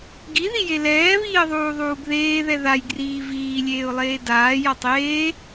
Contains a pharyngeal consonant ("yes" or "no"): no